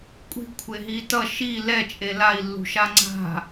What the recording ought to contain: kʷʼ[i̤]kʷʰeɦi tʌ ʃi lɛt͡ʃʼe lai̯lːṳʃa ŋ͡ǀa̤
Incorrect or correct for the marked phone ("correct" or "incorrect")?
correct